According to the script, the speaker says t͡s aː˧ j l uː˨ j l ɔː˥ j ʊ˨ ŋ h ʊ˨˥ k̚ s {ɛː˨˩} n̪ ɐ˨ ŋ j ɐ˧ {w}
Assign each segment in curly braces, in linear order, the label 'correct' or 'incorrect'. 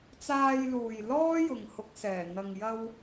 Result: correct, correct

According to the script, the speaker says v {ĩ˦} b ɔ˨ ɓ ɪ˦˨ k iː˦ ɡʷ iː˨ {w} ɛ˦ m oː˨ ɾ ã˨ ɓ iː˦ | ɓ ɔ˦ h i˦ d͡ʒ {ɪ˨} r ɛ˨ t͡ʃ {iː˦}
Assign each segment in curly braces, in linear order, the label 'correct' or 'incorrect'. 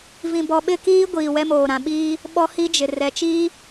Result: incorrect, correct, correct, correct

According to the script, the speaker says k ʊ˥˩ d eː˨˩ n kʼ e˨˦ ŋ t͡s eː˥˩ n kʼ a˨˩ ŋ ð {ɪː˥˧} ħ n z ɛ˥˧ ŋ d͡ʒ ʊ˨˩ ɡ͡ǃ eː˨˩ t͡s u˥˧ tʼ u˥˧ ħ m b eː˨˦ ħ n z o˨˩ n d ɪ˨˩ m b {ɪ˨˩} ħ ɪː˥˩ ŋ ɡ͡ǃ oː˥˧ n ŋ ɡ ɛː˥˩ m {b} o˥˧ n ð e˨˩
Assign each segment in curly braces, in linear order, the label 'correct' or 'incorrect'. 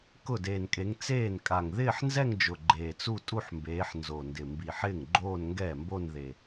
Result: correct, incorrect, correct

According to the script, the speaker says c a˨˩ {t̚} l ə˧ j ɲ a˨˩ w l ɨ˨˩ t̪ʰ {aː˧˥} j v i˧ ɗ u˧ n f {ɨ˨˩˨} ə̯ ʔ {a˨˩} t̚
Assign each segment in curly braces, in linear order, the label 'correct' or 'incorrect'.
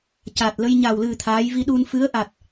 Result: correct, correct, incorrect, correct

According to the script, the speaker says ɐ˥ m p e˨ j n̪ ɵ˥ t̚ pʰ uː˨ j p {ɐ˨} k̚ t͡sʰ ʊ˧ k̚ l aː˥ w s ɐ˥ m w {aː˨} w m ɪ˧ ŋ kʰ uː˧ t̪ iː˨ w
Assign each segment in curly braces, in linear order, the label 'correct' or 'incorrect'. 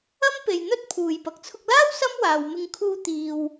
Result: correct, correct

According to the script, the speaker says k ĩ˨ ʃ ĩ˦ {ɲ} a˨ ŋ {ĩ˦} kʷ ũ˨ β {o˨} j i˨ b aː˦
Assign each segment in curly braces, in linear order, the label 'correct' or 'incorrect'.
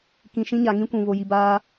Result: correct, correct, correct

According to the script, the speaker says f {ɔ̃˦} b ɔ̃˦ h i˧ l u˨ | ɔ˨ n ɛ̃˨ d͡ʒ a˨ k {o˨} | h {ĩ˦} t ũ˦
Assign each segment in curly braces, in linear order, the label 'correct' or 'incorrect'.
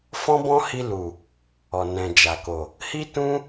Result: correct, correct, incorrect

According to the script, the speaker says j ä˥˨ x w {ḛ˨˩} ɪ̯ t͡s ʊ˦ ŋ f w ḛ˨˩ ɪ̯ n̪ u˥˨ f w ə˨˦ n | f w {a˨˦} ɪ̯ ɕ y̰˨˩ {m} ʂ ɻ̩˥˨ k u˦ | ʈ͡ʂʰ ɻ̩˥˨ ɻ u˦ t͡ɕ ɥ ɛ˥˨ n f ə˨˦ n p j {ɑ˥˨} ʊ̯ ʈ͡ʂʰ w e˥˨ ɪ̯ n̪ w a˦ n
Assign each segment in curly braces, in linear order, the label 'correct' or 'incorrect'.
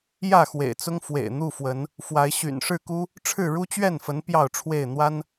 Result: correct, correct, incorrect, correct

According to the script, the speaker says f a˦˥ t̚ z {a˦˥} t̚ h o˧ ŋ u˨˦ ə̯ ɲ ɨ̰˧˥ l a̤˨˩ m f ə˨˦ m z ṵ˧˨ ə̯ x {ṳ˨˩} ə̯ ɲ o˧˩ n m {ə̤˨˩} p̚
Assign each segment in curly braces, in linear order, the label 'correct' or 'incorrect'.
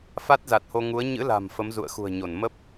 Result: incorrect, correct, incorrect

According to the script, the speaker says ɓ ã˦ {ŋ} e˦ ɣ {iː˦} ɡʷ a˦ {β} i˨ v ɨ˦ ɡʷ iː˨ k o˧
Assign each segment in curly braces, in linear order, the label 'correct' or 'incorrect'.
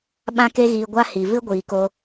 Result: incorrect, incorrect, incorrect

